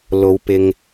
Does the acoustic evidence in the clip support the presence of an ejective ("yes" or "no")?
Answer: no